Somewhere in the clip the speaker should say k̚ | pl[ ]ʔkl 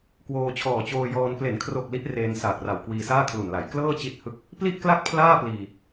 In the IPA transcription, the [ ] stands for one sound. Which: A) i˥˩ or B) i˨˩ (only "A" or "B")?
A